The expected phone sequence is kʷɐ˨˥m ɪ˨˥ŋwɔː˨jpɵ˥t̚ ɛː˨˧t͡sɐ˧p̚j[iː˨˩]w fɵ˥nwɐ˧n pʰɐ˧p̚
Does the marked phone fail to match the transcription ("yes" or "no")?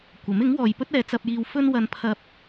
yes